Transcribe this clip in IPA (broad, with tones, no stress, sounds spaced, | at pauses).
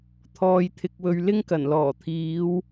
t̪ʰ ɔː˧ j t̪ʰ ɪ˧ k̚ w ɵ˧ ɥ l ɪ˥ ŋ k ɐ˨˩ n l ɔː˨˩ t̪ʰ iː˨˧ w